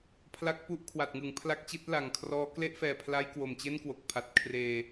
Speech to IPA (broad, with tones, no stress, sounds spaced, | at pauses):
pʰ l a˦˥ k̚ p u˥˩ ʔ kʰ w a˨˩ t̚ ŋ ɯ˩˦ ŋ pʰ l a˦˥ k̚ t͡ɕ i˦˥ t̚ l a˨˩ ŋ kʰ r ɔː˦˥ k l e˥˩ ʔ f ɛː˨˩ pʰ l a˦˥ j k w o˨˩ m t͡ɕ e˥˩ n k w o˨˩ k̚ pʰ a˨˩ t̚ kʰ r eː˧